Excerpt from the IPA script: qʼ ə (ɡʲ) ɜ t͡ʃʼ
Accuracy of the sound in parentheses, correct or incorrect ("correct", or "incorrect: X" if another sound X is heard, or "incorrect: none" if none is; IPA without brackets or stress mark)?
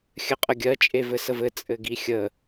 correct